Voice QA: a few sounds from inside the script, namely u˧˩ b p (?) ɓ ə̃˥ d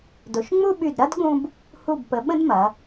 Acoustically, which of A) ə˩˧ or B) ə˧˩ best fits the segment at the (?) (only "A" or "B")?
A